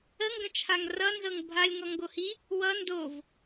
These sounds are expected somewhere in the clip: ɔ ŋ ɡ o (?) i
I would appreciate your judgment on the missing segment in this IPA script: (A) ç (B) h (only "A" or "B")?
B